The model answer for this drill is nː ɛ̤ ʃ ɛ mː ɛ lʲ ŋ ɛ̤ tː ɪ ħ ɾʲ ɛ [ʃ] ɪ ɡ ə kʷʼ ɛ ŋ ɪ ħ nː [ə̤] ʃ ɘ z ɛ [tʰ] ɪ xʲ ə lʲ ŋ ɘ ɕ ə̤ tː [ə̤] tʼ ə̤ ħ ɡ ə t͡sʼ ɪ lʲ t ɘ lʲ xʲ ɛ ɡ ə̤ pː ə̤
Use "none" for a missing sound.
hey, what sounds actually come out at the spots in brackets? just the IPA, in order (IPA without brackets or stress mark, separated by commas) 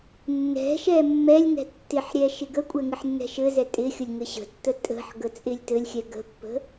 ʃ, ɛ̤, tʼ, ə